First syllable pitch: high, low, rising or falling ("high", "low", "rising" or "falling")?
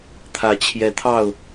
rising